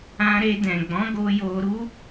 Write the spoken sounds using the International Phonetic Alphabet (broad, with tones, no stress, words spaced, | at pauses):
ã˧ ɾe˧dɛ̃˨ ɡ͡bɔ̃˨˦ɡo˧ jo˧ɾu˦